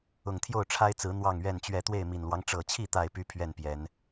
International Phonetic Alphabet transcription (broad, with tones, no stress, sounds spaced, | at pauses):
ʊ˨˩ ŋ t̪ʰ j o˥˨ ʊ̯ ʈ͡ʂʰ a˦ ɪ̯ t͡s ɹ̩˨˦ n̪ w ɑ˥˨ ŋ ɥ ɛ˥˨ n t͡ɕ ɥ ɛ˥˨ t̪ w e˥˨ ɪ̯ m i˨˩ n l w ɑ˦ ŋ ʈ͡ʂ ɤ˨˩ t͡ɕʰ i˥˨ t̪ a˥˨ ɪ̯ p y˦ pʰ ɥ ɛ˥˨ n p j ɛ˨˦ n